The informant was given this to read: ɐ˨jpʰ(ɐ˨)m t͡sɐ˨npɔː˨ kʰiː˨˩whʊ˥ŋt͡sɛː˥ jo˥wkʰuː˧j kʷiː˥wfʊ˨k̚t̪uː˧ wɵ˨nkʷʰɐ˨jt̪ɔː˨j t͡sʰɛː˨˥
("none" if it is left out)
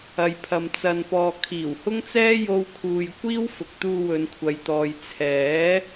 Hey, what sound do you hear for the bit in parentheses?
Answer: ɐ˨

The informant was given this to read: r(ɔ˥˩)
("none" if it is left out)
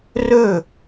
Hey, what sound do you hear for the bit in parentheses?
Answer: ɵ˥˩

